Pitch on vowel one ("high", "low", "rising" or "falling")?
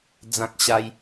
high